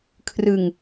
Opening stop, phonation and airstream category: aspirated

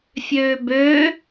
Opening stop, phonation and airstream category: plain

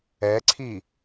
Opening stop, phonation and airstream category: click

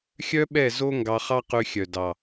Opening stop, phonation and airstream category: implosive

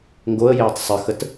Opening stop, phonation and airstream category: plain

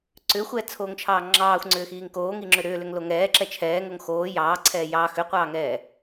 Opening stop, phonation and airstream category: click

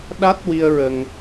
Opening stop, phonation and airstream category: implosive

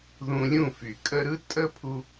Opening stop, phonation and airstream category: ejective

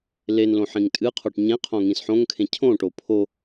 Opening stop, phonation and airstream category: ejective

